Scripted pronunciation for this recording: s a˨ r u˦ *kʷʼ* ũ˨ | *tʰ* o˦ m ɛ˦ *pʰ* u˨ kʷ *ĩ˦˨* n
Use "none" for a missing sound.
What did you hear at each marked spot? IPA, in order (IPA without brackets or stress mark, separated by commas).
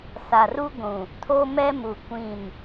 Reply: ɡʷ, tʰ, m, ĩ˦˨